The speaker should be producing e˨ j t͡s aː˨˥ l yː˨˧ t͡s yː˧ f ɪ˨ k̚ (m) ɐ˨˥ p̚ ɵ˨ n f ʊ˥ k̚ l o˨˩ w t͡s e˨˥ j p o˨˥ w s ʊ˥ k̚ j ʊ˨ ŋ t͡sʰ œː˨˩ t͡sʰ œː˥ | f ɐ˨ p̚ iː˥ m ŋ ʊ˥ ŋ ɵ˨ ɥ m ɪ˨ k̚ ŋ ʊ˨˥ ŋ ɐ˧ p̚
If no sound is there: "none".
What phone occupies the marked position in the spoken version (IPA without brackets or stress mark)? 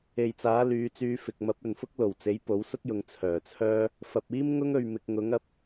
m